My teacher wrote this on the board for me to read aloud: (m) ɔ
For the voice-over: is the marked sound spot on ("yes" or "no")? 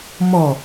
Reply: yes